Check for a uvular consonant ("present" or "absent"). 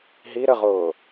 present